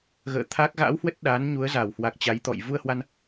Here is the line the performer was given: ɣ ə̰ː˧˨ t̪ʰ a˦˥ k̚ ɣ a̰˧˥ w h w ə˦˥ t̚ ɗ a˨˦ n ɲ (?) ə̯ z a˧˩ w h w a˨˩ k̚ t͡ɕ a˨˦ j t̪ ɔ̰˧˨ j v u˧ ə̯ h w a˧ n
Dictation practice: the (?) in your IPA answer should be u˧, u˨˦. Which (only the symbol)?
u˨˦